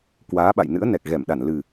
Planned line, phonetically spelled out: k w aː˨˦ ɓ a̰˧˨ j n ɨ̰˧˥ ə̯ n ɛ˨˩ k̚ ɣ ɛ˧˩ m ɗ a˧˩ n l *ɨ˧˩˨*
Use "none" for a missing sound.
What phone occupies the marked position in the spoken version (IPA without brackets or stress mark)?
ɨ˨˩